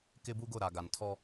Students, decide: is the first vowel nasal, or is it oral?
oral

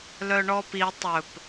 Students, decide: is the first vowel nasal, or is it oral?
oral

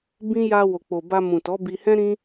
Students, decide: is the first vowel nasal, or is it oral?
nasal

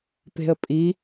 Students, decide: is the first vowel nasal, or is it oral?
oral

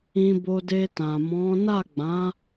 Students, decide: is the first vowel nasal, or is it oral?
nasal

